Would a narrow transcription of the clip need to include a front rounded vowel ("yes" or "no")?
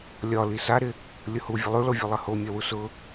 no